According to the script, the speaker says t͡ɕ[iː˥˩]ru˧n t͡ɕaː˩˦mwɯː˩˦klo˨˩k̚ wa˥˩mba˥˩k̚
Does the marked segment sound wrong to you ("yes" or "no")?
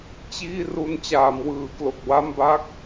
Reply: no